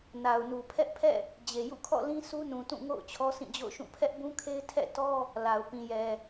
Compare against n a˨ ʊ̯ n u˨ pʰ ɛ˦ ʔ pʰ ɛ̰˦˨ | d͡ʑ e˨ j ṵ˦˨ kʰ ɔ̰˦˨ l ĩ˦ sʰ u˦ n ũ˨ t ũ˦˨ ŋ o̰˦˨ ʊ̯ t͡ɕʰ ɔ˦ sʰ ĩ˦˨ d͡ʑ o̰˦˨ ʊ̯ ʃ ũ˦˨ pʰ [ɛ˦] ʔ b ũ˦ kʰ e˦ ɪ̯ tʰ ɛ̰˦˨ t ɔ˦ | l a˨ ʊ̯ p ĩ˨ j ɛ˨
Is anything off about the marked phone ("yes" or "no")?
no